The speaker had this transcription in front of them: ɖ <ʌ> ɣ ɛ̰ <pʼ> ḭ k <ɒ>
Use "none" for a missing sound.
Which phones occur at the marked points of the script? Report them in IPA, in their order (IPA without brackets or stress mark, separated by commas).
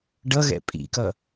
ʌ, pʼ, ʌ